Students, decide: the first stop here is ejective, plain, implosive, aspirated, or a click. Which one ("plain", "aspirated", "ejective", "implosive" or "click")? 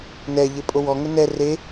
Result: ejective